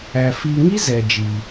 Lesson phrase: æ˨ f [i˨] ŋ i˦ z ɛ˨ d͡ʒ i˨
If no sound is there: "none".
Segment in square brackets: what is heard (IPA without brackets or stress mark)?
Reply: i˨